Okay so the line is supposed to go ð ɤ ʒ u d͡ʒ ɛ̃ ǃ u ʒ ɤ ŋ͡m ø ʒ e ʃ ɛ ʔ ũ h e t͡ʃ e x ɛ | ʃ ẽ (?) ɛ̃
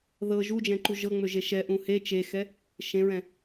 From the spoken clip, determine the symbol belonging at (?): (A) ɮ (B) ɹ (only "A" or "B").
B